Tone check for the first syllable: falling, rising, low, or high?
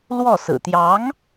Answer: falling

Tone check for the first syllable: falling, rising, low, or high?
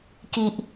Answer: high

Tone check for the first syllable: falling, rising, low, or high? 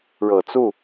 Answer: low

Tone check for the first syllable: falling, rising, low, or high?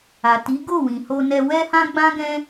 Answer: low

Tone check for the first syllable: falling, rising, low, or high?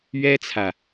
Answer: high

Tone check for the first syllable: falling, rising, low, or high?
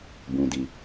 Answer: low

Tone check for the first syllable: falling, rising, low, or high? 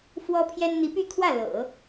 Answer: high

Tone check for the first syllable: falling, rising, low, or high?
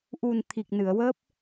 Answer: low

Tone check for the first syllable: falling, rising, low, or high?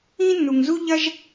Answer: high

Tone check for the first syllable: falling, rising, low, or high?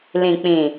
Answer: low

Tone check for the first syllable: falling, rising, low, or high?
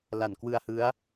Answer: low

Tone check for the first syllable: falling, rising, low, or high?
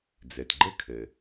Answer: low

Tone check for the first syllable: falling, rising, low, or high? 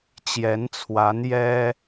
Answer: rising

